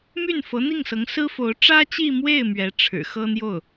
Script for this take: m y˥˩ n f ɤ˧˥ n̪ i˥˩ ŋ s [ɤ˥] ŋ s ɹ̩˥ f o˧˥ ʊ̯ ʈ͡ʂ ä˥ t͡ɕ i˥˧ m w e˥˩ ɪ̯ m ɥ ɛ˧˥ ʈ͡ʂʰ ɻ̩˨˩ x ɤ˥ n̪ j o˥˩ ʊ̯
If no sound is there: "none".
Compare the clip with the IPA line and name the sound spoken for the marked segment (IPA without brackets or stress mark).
ɤ˧˥